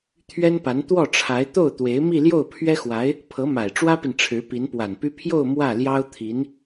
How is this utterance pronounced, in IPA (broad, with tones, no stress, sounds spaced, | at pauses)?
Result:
t̪ʰ ɥ ɛ˥ n p a˧˥ n t̪ w ɔ˥˩ ʈ͡ʂʰ a˧˥ ɪ̯ t̪ o˥˩ ʊ̯ t̪ w e˧˥ ɪ̯ m i˥˧ l j o˥˩ ʊ̯ pʰ ɥ ɛ˥ x w a˧˥ ɪ̯ | pʰ ɤ˧˥ m a˨˩ ɪ̯ ʈ͡ʂ w ä˥ p i˨ n ʈ͡ʂʰ ɻ̩˧˥ p i˧˥ n p w a˨˩ n p y˥ pʰ j o˥˧ ʊ̯ m w ä˥˩ l j ɑ˥ ʊ̯ t̪ʰ i˧˥ n